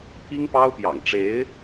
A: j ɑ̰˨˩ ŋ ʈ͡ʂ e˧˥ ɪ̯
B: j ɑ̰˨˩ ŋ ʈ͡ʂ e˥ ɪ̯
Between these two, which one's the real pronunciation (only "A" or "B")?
A